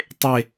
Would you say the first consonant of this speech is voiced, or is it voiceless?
voiceless